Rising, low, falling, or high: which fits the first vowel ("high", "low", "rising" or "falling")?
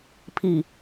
low